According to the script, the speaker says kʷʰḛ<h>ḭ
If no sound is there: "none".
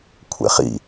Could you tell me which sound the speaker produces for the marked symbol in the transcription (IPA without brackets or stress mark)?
χ